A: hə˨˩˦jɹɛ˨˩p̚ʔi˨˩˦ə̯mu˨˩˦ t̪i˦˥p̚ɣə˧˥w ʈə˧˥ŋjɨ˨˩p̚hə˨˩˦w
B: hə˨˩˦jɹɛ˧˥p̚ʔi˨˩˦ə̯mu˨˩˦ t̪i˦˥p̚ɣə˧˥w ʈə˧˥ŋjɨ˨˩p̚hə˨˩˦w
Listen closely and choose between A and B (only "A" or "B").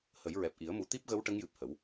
A